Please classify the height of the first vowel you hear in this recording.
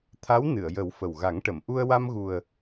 low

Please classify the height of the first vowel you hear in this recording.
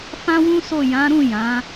low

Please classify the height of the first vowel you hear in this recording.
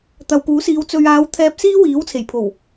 low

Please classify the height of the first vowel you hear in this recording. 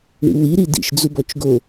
high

